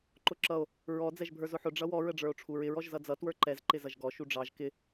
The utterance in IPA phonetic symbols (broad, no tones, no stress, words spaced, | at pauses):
ǃʊǁʌo̯ | ɹɔ d͡zɛʒbʱə˞zʊħʊ ɖ͡ʐʌwɔ ɹəɖ͡ʐə˞o̯ʈ͡ʂʰuɹɪɹ ɔʒzʌd͡zʌ twə˞ǃɛz ǃɪzʌʒɡɔ ʃuɖ͡ʐɑʒ kɪ